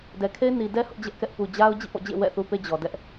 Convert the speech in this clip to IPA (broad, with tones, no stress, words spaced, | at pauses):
dɛ˨kʰe˦ɪ̯ ni˨dɛ˦ hʊ˦ʔd͡ʑɛ˦ʔkɛ˦ʔ pu˨d͡ʑa˦ʊ̯ d͡ʑḭ˦˨pɔ̰˦˨d͡ʑḛ˦˨ wɛ̰˦˨θu˦pe˦ d͡ʑɔ˨dɛ˦ʔ